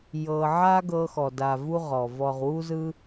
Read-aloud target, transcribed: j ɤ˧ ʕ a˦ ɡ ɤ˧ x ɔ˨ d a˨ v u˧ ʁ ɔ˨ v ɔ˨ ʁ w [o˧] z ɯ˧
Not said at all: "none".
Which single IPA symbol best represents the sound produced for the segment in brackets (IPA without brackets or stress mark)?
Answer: u˧